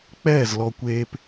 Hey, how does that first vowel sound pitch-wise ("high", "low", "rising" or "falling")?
falling